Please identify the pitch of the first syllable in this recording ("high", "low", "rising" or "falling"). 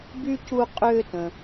high